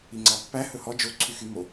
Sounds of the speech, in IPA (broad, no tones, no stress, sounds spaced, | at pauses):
i ŋ͡ǀ ɑ pː æ h ɵ h ɔ d͡ʒ o ǀʰ y x y m o